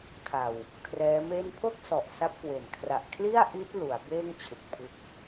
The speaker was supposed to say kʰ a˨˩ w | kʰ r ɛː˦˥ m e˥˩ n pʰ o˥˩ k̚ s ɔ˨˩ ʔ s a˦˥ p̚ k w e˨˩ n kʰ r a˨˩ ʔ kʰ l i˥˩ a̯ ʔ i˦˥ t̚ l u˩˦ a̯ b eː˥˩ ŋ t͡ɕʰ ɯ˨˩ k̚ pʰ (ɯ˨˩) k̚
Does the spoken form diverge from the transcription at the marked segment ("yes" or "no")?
yes